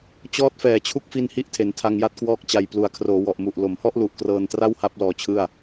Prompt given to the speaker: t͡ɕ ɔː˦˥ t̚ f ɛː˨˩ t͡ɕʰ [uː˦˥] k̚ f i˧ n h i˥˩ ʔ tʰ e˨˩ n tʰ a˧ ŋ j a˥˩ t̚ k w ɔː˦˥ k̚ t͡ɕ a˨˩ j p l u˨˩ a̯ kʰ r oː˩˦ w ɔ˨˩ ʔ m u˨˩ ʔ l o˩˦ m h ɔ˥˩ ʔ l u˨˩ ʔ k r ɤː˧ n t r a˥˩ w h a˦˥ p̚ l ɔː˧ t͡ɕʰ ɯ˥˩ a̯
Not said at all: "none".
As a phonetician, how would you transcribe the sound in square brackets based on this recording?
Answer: u˦˥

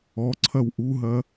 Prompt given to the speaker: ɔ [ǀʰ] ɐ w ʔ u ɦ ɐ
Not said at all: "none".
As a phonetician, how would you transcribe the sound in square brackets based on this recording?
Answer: ǀʰ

